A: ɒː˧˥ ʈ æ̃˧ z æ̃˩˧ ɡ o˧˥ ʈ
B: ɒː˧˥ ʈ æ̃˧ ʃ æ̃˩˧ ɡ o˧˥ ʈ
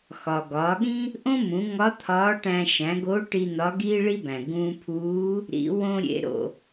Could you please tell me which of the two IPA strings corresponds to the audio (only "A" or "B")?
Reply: B